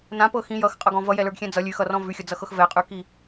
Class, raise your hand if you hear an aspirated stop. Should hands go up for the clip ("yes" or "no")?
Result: no